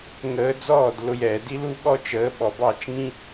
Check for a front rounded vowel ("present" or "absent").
absent